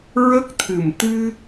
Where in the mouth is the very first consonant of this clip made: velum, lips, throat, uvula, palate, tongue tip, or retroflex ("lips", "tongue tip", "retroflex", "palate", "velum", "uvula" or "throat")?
tongue tip